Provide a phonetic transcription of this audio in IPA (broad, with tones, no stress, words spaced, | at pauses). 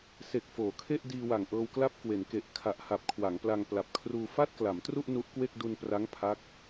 se˨˩k̚foː˩˦kʰe˥˩ʔ diː˧wa˨˩ŋʔɤː˧wkla˥˩p̚ kwe˩˦nke˨˩ʔ kʰa˨˩ʔha˨˩p̚ kʰwa˩˦ŋpla˧ŋ pla˨˩p̚kʰruː˧ fa˥˩t̚kla˩˦mtru˥˩ʔ nu˦˥ʔkwe˥˩k̚ du˧npra˦˥ŋ pʰa˦˥k̚